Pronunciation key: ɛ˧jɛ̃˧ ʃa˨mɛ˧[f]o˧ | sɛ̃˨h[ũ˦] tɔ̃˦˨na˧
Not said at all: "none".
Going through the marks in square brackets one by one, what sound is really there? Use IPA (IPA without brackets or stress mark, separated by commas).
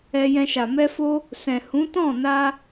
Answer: f, ũ˨˦